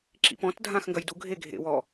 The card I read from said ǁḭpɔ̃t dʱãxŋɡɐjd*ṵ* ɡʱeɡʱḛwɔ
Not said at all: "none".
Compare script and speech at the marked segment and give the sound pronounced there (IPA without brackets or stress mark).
u